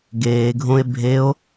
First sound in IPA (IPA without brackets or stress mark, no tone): ɡ